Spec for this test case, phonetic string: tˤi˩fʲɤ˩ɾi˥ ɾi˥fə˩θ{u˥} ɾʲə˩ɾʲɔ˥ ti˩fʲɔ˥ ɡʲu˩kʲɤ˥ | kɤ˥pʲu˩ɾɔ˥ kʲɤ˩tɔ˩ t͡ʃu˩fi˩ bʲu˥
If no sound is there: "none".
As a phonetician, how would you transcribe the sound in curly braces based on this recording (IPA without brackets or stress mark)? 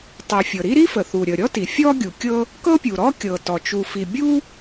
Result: u˩